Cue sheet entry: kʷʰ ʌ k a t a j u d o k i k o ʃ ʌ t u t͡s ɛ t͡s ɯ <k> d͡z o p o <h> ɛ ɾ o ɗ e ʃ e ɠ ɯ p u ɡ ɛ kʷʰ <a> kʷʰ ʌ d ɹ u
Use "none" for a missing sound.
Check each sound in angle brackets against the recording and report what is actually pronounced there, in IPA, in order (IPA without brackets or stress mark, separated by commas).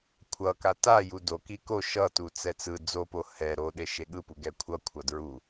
none, h, ʌ